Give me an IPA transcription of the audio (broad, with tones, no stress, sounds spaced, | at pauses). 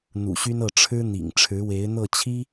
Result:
n̪ ṵ˨˩ ɕ y˥ n ɤ˥˩ ʈ͡ʂʰ ɻ̩˥ n̪ ḭ˨˩ ŋ ʈ͡ʂʰ ɻ̩˧˥ w e˧˥ ɪ̯ n̪ ɤ˥˩ t͡ɕʰ i˥